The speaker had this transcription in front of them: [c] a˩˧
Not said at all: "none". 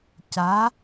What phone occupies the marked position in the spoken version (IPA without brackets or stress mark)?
c